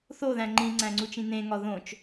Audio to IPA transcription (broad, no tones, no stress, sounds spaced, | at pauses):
θ o ð æ̃ ŋ͡ǃ ĩ ŋ͡ǀ æ̃ ŋ͡ǀ u t͡ʃ ĩ n ẽ ŋ ɒ ð õ t͡ʃ